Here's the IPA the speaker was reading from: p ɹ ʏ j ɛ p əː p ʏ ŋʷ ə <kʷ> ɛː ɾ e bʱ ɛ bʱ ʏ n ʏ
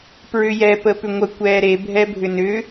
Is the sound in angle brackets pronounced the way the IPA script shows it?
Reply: yes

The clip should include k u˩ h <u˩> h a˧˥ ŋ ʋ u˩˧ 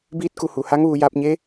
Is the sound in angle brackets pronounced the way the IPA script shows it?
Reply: yes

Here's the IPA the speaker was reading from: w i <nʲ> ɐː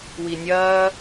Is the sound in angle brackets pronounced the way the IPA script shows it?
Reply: yes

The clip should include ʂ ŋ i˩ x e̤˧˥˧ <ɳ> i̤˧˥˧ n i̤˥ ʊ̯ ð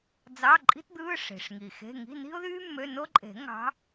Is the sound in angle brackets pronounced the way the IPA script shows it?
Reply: no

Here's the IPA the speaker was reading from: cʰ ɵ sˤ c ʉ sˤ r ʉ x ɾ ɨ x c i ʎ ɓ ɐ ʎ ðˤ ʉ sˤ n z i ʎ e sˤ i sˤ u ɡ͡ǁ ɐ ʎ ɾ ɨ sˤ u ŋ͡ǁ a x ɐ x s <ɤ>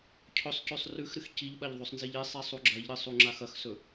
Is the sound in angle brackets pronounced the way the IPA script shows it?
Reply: no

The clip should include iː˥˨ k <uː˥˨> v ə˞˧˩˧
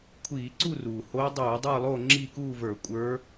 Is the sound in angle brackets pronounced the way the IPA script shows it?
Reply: yes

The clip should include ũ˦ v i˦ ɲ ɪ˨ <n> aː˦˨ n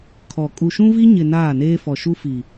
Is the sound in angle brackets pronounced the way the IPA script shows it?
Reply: yes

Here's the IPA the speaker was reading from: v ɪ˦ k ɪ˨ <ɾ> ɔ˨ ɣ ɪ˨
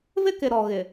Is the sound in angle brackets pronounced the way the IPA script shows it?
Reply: yes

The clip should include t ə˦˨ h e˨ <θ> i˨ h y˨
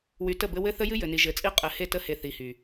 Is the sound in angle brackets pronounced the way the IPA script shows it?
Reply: yes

